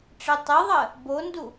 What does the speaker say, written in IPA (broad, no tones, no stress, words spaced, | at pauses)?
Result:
ʈ͡ʂetˤeðˤɜ | bondu